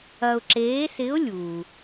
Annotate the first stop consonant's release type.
click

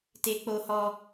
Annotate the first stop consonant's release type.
plain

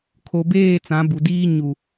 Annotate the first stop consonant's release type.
aspirated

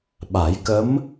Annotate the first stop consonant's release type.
implosive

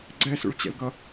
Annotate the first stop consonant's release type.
click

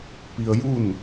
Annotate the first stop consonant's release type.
plain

